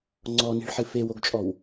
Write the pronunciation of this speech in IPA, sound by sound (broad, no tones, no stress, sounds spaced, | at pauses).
ŋ͡ǀ ɔ n i̤ ɭ ħ ɨ f e w o ɡ t͡ʃʼ ɔ w